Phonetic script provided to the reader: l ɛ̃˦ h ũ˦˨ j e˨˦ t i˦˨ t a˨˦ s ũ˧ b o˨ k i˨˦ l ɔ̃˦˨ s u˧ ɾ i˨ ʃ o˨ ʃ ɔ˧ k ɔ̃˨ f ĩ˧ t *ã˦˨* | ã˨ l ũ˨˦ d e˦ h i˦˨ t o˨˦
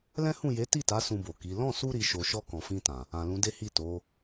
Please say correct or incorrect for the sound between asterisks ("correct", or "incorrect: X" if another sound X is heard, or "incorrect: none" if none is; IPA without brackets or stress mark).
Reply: incorrect: ã˨